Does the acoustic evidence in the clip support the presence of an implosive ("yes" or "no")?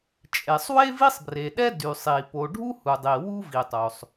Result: yes